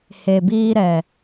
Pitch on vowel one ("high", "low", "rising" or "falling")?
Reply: low